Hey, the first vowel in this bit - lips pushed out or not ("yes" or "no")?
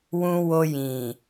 yes